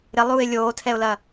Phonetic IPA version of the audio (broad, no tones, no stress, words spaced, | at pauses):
ɾɪlˠuːɪ̯ lʲoːtʰɛʊ̯lɐ